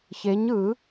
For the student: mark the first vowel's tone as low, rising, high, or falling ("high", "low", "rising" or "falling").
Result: rising